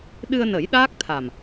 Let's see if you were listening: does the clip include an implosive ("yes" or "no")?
yes